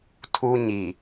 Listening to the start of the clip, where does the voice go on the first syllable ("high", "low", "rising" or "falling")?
high